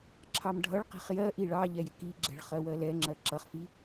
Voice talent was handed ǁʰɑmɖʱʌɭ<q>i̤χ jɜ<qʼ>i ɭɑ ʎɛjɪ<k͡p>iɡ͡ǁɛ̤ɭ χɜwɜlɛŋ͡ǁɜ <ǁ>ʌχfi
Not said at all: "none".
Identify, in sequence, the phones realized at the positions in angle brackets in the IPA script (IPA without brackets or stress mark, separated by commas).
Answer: q, ʔ, k, ǁ